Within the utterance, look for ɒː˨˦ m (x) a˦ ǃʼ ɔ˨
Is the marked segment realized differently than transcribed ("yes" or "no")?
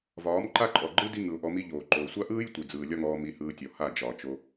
yes